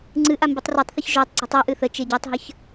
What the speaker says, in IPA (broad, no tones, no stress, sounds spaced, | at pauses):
ŋ͡ǀ ɨ ʔ a m b i tˤ r o tˤ θ ɨ ç ʒ o tˤ ɡ͡ǀ i tˤ ɛ ʔ ɨ θ ə t͡ʃ e ɟ a tˤ ɦ ə ç